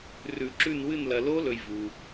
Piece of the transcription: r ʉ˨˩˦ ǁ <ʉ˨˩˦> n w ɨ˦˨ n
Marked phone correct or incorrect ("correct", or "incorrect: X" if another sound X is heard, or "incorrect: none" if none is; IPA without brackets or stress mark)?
incorrect: ʉ˦˨